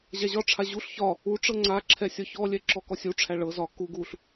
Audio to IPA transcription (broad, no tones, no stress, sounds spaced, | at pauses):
ʑ a ʑ ɒ ʈ͡ʂʰ a ʑ u ɬ ç ɒ | u ʈ͡ʂ ɤ ŋ͡ǀ a ǁʰ ɛ sʲ ɒ ç ɔ lʲ ɛ ǁ ɔ k ɔ sʲ u ʈ͡ʂʰ æ ɭ ɤ z ɒ k u ɡ u ɬ